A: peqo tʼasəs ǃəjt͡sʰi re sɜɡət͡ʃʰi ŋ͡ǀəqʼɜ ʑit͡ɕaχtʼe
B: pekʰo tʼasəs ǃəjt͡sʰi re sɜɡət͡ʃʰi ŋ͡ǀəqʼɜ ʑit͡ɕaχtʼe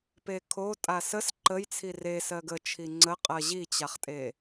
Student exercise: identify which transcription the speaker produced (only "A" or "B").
B